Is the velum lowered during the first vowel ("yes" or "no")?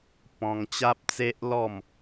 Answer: yes